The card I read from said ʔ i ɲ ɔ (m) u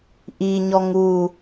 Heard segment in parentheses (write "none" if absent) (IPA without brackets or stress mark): ŋ